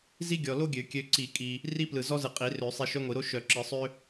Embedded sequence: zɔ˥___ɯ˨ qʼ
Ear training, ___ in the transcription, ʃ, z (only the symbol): z